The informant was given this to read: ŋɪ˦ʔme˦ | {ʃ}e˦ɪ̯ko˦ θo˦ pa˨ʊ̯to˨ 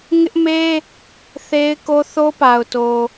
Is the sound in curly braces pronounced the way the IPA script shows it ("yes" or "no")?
no